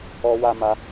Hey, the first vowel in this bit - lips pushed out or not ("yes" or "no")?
yes